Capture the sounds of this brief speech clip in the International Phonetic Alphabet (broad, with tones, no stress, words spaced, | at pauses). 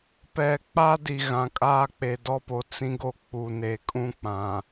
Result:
pɛ˨k͡pa˦di˨ ɣã˨kʼaː˦ k͡pe˨dɔ˦po˨ t͡sĩ˦ɡo˦ k͡pu˨ne˨kʼũ˦k͡pã˨